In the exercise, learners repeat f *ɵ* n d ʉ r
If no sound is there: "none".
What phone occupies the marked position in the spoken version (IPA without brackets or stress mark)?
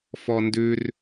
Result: ɔ